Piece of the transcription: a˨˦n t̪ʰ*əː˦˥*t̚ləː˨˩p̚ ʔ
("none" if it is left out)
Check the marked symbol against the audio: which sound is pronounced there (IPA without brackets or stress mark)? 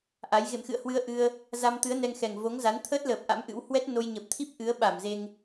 əː˦˥